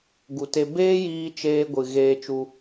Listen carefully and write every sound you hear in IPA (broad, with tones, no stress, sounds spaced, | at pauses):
ɡ u˨ t e˧ b eː˦ j iː˧ t͡ʃ eː˦ ɡʷ ɨ˨ ɣ eː˧ t͡ʃ u˧